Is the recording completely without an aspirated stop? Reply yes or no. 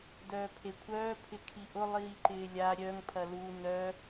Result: no